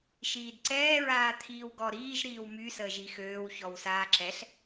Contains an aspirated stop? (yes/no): yes